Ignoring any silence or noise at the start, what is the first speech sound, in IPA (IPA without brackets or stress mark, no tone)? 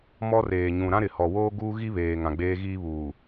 m